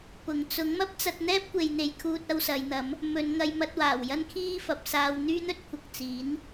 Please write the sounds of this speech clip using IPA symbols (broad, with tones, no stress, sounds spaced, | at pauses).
p ʊ˨˩ ŋ t͡s ʊ˨˥ ŋ m ɐ˥ p̚ t͡s ɐ˧ t̚ n̪ ɛː˥ p̚ kʷ e˨ j n̪ e˨ j kʰ uː˧ t̚ ɐ˧ w s ɐ˨˧ j n̪ ɐ˨˥ m | m ɵ˨˧ n ŋ ɐ˧ j m ɐ˧ t̚ w aː˨˩ w j ɐ˥ n kʰ iː˥ f ɐ˨ p̚ s aː˧ w n̪ yː˥ n̪ ɵ˥ t̚ kʷʰ ɐ˨ k̚ t͡s iː˨˥ n